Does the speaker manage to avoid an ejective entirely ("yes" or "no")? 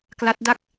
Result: yes